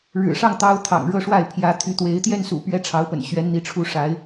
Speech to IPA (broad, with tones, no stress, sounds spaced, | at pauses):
ɻ ɻ̩˨˩ ʂ ɑ˥˩ ŋ t̪ ɑ˧˥ ʊ̯ t̪ʰ ɑ̰˨˩ ŋ ɻ ɤ˥˧ ʂ w a˥˩ ɪ̯ pʰ j ä˧˥ t̪ʰ y˧˥ t̪ w e˧˥ ɪ̯ t̪ j ɛ˥˩ n s ṵ˨˩ p ɥ ɛ˥ ʈ͡ʂʰ ɑ˧˥ ʊ̯ p ə̰˨˩ n ɕ ɥ ɛ˧˥ n n̪ i˧˥ ʈ͡ʂʰ u˥˩ ʂ a˧˥ ɪ̯